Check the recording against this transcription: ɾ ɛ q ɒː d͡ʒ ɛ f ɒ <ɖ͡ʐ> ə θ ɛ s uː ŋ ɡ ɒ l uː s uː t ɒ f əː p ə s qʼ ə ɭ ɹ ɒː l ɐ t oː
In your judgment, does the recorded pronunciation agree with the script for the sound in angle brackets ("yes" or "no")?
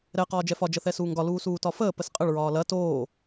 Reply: no